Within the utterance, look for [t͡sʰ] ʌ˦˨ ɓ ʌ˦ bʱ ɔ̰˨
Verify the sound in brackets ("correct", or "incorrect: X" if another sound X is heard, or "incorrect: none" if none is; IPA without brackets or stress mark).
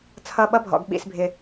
correct